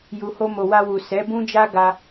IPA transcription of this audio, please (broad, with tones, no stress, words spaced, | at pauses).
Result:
ju˨ho˧ mo˨wa˧wu˨ sɛ˨˦bũ˦d͡ʒa˦ɡa˧